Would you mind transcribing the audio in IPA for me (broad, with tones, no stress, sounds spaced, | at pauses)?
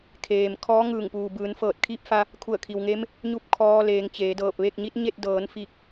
kʰ eː˩ m kʰ ɔː˧˥ ŋ ɯː˧˩ ŋ p uː˩ b ɯː˩˧ n f ɤː˧˩ t̚ kʰ iː˧˥ p̚ f a˧ | kʰ u˧˩ ə̯ kʰ i˩ w ŋ e˧˥ m | ɲ u˥˨ p̚ kʰ ɔː˧ l eː˩˧ ŋ t͡ɕ eː˩˧ d ɤː˧˩ p̚ ʋ e˥˨ k̚ ɲ i˧˥ t̚ ɲ e˥˨ t̚ d ɤː˩˧ n f i˧˩ k̚